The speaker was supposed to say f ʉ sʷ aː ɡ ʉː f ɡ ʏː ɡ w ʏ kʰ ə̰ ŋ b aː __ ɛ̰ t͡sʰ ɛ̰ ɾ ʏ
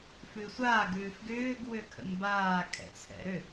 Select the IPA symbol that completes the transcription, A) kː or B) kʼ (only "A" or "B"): B